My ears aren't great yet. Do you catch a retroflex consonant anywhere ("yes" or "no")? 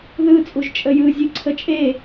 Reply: no